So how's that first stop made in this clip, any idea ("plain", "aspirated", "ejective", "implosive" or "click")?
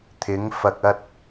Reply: aspirated